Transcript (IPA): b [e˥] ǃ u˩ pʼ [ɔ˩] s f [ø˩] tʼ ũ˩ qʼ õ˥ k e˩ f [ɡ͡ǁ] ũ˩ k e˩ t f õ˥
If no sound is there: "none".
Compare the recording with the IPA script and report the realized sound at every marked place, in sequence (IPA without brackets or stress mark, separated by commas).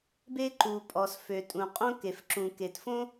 e˥, ɔ˩, ø˩, ǁ